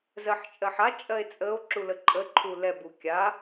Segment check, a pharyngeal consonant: present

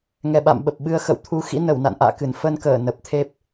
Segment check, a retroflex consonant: absent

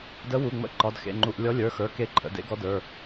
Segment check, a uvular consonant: absent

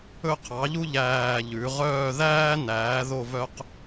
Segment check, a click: absent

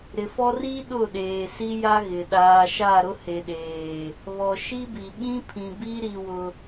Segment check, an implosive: present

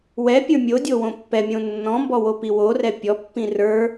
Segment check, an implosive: absent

